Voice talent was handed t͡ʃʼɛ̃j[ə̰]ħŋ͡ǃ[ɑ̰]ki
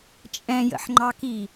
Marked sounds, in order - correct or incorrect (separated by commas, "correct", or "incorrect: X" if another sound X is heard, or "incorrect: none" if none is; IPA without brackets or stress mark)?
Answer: correct, incorrect: ɑ